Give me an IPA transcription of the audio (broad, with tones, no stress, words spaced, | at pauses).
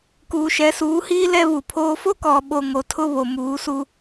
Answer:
kuː˨ʃɛ˨˦suː˨˦hiː˦ lɛ˦βu˨pʰoː˦ fo˦kɔ˨ɓo˨ ŋo˨tʰʊ˦βo˨ muː˨˦su˦